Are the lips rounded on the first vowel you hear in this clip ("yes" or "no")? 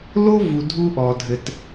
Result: yes